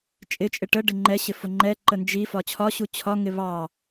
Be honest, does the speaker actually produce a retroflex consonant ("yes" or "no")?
yes